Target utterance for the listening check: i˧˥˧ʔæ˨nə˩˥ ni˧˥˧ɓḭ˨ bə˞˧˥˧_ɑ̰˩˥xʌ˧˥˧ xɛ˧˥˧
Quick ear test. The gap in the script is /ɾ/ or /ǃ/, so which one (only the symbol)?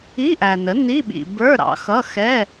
ɾ